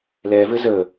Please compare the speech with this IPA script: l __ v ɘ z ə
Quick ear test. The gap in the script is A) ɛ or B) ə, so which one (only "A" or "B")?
A